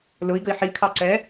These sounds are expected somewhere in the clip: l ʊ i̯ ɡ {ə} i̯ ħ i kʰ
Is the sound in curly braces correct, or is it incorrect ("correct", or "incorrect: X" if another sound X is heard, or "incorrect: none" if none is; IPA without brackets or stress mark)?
correct